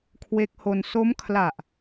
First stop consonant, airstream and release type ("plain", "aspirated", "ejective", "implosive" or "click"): aspirated